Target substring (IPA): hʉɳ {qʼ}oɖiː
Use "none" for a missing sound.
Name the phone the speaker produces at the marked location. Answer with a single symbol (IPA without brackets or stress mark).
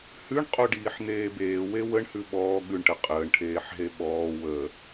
qʼ